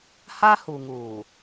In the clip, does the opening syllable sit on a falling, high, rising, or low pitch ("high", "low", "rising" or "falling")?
high